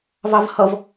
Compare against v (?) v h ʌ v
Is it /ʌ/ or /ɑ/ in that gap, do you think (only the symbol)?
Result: ɑ